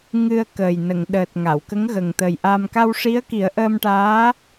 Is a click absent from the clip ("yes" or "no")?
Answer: yes